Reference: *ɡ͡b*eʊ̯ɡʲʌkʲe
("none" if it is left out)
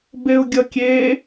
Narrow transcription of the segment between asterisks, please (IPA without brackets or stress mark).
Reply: b